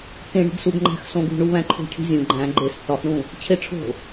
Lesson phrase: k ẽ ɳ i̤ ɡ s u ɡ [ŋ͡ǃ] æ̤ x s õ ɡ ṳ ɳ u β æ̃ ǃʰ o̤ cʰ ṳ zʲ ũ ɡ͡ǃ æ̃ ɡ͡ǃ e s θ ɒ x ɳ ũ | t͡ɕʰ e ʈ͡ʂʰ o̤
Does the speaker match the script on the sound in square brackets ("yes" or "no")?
yes